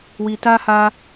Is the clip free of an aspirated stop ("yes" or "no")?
yes